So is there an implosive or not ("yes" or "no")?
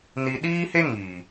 yes